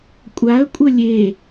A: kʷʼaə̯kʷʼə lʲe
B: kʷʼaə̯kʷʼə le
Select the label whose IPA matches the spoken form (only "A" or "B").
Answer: A